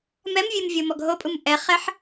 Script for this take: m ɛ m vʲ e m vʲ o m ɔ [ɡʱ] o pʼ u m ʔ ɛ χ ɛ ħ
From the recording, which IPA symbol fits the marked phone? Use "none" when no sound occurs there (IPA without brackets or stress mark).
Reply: ɡʱ